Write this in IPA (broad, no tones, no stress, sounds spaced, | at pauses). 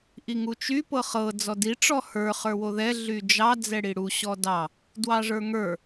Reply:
ʔ i ŋ u t͡ʃ y p ɤ χ ɤ d͡z ɔ d i ʈ͡ʂ ɔ h ə˞ χ ə˞ w o ð ɛ ɮ y d͡ʒ ɑ d͡z ɛ ɽ i ɽ u ɕ ɔ d ɑ | d w ɑ ʐ ə˞ ŋ ə˞